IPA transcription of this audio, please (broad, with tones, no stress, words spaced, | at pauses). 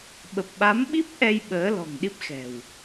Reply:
ɓə˨˩p̚ɓa˨˦mɓi˦˥p̚ ʔɛ˧j ɓəː˨˦lɔ̤˨˩ŋɗi˦˥p̚xɛ̤˨˩w